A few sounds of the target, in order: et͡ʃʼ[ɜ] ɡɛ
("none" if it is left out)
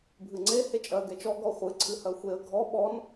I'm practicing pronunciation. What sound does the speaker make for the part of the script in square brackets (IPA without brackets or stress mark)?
ɜ